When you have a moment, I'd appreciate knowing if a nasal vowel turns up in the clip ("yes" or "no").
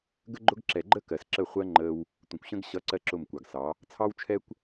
yes